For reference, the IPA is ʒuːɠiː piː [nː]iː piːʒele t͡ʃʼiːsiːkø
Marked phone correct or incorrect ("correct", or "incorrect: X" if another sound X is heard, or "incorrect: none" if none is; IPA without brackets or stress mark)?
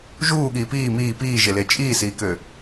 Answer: incorrect: m